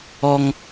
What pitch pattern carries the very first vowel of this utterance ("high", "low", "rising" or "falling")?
high